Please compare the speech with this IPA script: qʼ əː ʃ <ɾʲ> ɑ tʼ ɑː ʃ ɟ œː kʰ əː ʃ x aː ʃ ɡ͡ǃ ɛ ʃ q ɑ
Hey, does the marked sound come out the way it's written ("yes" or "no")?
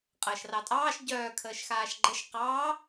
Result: no